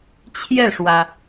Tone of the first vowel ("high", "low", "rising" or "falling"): falling